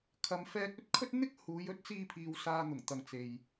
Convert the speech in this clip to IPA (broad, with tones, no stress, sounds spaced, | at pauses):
kʰ ɐ˨ m f ɛː˧ k̚ ɵ˥ t̚ kʰ ɵ˥ t̚ n̪ ɪ˥ k̚ h uː˨˧ j ɵ˨˥ t̚ t͡s iː˧ pʰ iː˨ w s aː˨ n̪ ʊ˨˩ ŋ t̪ ɐ˨ ŋ t͡s e˨ j